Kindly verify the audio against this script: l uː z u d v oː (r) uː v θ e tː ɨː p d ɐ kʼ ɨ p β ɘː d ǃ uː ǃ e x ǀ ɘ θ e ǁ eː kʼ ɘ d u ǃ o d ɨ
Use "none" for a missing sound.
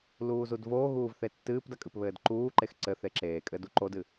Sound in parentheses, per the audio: ɣ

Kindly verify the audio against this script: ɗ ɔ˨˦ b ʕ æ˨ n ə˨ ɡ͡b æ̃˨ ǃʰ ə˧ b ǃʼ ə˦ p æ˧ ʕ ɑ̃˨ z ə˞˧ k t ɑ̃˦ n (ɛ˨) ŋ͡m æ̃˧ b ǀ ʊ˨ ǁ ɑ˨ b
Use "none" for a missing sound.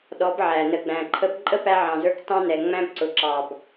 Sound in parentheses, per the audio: ɛ˨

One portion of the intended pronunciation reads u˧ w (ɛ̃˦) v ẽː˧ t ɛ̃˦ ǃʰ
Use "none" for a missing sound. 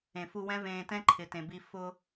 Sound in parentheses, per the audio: ɛ̃˦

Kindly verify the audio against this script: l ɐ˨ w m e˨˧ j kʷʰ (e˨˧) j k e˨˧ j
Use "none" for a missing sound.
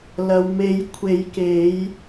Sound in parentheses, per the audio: e˨˧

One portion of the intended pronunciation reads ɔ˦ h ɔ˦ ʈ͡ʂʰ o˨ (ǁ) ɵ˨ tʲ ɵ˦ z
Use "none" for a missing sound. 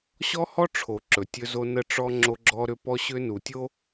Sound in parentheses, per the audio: ǁ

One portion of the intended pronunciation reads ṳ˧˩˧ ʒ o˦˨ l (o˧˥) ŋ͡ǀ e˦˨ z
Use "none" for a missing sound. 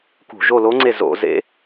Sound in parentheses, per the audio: o˧˥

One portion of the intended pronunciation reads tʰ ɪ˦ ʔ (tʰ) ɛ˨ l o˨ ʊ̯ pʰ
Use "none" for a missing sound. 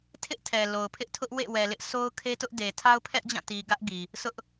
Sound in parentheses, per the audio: tʰ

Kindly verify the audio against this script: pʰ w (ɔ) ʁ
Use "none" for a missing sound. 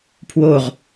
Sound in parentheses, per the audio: o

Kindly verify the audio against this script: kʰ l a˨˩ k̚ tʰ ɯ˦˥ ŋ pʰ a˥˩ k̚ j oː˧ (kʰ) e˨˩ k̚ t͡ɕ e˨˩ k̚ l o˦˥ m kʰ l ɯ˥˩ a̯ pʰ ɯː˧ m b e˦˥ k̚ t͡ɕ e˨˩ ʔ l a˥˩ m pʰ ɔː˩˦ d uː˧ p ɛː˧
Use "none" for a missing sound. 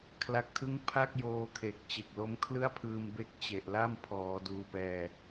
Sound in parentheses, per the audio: kʰ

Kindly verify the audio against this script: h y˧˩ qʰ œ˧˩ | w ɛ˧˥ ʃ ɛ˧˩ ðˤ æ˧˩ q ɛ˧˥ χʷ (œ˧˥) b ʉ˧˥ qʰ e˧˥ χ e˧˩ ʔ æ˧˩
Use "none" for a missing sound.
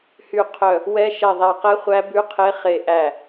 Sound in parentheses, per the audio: æ˧˥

